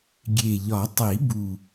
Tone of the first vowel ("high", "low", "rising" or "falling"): low